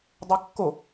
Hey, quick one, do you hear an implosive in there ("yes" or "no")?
no